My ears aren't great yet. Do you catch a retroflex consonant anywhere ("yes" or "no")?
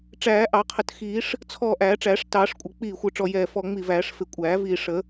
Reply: yes